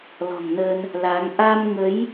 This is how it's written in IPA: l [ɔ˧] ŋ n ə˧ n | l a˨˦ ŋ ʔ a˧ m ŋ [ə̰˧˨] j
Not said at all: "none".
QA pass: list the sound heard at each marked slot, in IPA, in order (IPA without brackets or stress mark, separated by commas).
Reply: ɔ̤˨˩, ə˨˦